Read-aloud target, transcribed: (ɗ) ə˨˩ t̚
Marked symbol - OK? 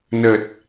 no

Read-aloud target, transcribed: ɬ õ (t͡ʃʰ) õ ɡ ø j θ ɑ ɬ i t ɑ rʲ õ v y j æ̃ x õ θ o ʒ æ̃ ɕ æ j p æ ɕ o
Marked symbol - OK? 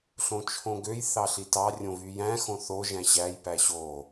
yes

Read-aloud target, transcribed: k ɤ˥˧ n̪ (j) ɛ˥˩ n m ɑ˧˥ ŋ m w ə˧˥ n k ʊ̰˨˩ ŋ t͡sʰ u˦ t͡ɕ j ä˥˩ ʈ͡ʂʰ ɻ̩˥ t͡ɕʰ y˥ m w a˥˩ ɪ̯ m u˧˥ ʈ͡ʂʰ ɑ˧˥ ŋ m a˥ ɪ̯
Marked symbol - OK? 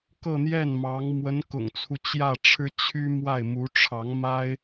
yes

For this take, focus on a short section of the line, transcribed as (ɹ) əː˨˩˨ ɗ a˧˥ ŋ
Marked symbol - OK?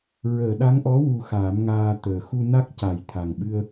yes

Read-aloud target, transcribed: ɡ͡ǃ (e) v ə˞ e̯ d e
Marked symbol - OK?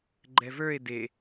no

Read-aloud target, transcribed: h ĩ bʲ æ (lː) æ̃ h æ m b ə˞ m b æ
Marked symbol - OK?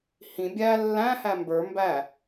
yes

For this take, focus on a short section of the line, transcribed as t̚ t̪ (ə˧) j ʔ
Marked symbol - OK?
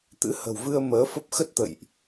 no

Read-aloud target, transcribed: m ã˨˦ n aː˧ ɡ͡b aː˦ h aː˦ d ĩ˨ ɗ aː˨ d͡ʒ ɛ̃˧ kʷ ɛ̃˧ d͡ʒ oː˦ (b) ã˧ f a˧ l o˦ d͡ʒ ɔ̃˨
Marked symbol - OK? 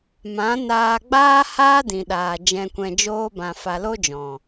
yes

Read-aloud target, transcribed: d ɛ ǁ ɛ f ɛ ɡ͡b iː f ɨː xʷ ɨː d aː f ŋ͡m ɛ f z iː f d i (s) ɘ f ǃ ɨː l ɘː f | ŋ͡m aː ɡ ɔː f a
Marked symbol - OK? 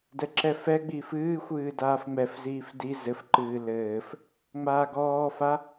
no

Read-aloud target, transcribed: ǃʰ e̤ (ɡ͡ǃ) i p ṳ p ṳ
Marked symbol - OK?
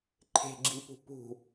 no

